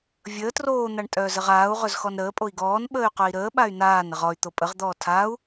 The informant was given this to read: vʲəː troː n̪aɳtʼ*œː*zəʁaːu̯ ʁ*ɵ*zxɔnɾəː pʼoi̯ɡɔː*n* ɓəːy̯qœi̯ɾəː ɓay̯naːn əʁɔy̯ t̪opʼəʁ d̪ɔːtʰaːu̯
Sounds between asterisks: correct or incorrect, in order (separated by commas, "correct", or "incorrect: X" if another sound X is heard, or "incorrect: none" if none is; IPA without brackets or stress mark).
correct, correct, correct